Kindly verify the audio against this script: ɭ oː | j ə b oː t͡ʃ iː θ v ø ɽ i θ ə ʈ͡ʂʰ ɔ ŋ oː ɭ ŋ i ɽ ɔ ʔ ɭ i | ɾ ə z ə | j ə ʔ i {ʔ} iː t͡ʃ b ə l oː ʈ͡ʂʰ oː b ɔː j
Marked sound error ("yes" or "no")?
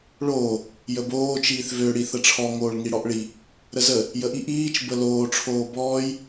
no